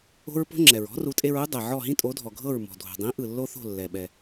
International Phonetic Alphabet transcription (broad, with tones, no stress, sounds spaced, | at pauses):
o̤˥ ɹ p o̤˥ ŋ͡ǁ ɛ˩ ɹ ɔ̤˥ r u˩˥ tʼ e˧ ɹ u˥ dˤ ɛ˩ ʕ ɔ˥˩ ɦ ĩ˥ tʼ o˩˥ dʱ ɔ˩ ɡʱ ɤ˥˩ ɹ m ɔ̤˩ dʱ o̤˩ dˤ ĩ˩˥ ʔ ɯ˩ lː o˥ θ o̤˥˩ lː ɛ˩ ɓ ɛ˩